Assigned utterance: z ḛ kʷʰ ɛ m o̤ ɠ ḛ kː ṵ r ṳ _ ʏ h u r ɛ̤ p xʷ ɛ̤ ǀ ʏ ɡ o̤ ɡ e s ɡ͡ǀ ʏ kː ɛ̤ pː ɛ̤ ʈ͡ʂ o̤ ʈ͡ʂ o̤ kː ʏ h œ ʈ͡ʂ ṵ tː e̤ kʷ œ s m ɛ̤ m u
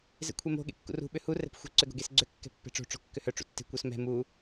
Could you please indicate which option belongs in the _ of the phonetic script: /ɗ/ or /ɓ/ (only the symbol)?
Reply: ɓ